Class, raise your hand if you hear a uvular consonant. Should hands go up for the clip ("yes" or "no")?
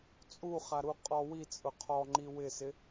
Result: yes